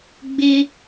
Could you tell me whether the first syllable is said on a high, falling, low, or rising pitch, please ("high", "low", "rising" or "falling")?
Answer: high